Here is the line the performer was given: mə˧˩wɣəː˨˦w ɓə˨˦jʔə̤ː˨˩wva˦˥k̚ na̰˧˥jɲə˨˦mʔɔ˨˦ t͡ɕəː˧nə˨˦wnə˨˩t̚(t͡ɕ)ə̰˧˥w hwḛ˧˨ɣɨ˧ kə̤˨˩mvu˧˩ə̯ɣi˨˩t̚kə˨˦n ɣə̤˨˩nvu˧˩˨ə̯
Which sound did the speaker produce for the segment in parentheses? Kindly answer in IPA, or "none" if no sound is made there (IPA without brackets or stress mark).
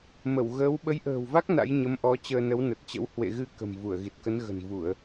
t͡ɕ